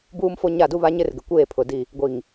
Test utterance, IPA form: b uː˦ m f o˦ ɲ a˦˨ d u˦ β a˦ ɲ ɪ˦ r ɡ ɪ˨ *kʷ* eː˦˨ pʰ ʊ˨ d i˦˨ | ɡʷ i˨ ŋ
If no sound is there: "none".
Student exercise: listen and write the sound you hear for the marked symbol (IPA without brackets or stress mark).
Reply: kʷ